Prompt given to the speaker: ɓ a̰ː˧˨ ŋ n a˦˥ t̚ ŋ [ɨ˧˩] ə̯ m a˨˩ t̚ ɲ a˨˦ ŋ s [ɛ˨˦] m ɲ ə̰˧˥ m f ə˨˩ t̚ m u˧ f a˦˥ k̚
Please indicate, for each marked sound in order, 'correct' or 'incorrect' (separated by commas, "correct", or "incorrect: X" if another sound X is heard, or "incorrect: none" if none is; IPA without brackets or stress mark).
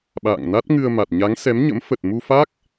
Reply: incorrect: ɨ˧, correct